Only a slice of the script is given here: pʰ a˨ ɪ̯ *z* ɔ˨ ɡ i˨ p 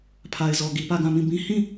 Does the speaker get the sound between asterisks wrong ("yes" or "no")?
no